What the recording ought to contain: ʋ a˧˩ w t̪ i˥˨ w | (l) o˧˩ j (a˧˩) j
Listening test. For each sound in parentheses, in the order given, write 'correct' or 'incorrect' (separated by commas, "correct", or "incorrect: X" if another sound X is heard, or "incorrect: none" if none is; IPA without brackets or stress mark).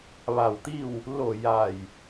correct, correct